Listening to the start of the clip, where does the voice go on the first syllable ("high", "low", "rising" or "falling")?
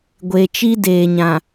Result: low